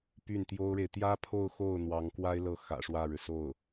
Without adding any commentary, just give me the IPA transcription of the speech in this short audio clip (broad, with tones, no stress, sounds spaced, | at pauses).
p y˥˩ n t̪ j o˥ ʊ̯ ɻ e˨ ɪ̯ t̪ j ä˥ pʰ o˥˧ ʊ̯ x o˥˩ ʊ̯ n̪ w ɑ˧˥ ŋ k w a˥ ɪ̯ l ɤ˥˩ x ä̰˨˩ ʂ w ä˥˩ ɻ ɻ̩˩ s o˥˩ ʊ̯